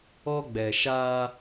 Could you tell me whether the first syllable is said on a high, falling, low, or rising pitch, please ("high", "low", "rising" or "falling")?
high